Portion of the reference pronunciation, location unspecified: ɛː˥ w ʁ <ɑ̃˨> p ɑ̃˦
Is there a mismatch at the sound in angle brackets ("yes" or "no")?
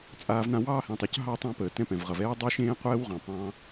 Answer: yes